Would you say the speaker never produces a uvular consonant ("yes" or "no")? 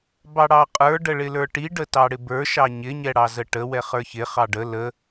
no